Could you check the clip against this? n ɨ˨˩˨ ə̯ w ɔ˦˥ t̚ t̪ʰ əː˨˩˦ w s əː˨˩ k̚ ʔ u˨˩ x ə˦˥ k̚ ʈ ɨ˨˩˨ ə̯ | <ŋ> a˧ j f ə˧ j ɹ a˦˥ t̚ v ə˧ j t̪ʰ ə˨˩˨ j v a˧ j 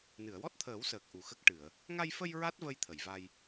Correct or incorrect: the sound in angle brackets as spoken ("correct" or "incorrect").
correct